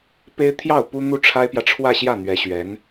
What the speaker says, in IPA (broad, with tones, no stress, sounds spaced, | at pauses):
p e˥ ɪ̯ t̪ʰ j ɑ˥˩ ʊ̯ p u˥ n̪ u˥˩ ʈ͡ʂʰ a˥ ɪ̯ p j ä˨ ʈ͡ʂʰ w ä˥˧ ɕ j ä˥˩ n̪ ɥ ɛ˧˥ ɕ ɥ ɛ˧˥ n